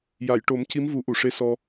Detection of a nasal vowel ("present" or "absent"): absent